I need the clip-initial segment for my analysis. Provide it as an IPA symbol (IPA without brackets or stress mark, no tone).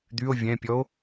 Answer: d̪